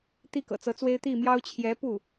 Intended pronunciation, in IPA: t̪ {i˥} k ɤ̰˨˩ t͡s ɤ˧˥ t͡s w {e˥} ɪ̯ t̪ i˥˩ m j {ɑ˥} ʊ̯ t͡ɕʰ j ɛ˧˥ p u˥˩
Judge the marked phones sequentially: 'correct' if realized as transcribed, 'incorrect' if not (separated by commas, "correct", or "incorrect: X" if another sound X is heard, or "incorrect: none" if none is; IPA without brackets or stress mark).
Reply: correct, correct, correct